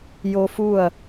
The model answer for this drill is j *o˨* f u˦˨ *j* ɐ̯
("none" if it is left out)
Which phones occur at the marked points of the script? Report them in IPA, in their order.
o˨, none

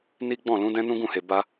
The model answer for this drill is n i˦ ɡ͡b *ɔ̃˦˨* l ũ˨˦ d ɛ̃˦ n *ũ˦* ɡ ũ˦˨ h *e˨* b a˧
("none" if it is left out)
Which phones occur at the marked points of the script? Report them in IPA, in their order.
ɔ̃˦˨, ũ˦, e˨

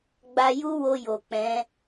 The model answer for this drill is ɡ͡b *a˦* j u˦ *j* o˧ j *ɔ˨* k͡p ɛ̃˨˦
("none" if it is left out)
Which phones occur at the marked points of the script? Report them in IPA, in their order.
a˧, w, o˨

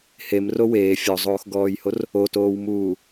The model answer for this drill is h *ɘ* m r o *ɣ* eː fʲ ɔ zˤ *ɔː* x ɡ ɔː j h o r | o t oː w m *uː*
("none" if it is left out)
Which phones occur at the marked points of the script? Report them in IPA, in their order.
e, w, oː, uː

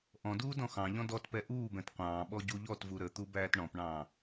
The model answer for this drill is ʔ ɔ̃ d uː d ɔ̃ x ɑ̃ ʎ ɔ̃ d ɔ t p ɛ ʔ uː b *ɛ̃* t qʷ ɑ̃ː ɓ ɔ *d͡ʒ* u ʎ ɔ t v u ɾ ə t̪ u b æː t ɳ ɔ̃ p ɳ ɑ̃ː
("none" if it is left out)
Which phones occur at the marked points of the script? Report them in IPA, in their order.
ɛ̃, ɟ

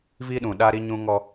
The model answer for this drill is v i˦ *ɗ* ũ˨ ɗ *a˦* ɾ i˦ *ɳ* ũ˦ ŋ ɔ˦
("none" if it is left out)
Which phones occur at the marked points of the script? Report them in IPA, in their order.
ɗ, a˦, ɲ

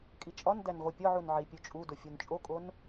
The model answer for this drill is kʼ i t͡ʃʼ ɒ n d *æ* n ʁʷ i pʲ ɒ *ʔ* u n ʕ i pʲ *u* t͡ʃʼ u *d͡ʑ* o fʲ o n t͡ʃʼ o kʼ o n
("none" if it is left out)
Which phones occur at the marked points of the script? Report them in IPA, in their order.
æ, ʕ, u, d

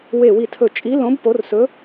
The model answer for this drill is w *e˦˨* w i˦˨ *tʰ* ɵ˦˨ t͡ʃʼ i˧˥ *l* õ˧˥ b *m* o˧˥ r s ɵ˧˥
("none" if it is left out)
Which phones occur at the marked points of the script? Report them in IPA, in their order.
e˦˨, tʰ, l, p

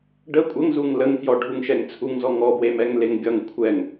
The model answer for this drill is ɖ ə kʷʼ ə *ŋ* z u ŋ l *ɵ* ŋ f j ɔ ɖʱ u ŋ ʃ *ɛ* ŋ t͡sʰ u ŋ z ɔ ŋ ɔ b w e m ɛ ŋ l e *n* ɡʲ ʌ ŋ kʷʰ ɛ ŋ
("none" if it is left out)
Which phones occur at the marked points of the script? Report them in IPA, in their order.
ŋ, ə, ɛ, ŋ

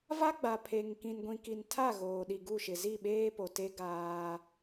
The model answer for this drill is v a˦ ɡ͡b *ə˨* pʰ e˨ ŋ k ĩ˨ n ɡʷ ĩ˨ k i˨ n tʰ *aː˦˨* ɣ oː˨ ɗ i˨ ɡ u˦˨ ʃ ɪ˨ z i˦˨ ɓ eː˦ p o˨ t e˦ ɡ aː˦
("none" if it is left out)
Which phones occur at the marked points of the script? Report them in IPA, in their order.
a˨, a˦˨

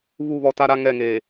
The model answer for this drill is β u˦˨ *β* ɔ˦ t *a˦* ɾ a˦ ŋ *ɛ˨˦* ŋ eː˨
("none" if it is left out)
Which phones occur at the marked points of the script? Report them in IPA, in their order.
β, a˦, ɛ˦˨

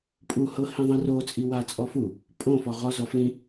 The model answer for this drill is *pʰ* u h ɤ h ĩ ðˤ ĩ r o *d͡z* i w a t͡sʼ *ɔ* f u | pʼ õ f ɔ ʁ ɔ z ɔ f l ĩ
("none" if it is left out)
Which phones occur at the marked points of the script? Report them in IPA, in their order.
pʼ, t͡sʼ, ɔ

